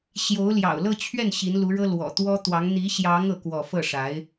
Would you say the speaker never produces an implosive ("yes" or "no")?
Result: yes